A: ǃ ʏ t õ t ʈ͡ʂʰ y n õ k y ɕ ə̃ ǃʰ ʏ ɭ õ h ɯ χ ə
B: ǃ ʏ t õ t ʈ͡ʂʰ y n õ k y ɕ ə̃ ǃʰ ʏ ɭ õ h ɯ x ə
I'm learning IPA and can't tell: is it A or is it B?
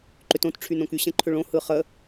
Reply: A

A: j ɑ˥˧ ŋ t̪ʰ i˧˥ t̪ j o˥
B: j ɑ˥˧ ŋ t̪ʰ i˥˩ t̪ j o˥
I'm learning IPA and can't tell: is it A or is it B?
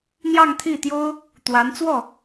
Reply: B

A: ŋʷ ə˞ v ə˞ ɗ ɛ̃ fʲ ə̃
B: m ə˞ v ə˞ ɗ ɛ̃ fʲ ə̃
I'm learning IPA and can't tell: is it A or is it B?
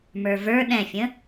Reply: B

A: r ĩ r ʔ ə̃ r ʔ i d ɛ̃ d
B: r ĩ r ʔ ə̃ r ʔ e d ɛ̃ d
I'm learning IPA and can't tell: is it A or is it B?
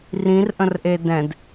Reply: B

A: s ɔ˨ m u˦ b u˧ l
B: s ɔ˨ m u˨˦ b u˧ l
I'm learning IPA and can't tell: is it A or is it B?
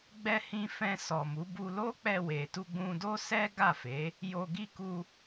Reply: B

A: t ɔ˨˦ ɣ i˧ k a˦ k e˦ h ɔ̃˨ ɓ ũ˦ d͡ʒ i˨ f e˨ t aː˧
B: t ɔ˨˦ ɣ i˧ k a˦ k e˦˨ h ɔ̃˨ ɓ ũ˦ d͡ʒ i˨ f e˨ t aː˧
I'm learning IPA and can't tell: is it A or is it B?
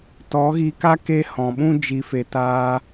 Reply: A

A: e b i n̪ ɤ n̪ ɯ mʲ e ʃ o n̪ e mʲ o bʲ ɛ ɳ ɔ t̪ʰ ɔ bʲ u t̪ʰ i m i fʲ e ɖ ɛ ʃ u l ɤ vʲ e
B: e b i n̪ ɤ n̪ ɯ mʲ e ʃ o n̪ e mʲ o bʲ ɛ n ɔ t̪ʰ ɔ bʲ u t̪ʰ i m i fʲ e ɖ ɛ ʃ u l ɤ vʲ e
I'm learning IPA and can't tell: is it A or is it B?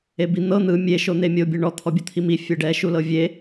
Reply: A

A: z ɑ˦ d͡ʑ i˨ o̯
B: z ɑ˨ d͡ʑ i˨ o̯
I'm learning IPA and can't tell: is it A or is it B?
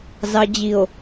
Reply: B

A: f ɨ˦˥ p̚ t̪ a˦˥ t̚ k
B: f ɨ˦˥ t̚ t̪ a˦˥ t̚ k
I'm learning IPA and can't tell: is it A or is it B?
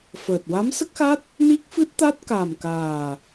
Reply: B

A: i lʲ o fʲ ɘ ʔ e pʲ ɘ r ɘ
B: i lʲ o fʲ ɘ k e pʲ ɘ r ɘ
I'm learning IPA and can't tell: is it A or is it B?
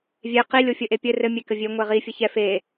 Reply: A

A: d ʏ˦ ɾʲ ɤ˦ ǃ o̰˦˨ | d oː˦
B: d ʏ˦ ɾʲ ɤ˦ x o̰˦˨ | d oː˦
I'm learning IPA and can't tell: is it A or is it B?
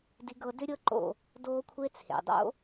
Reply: A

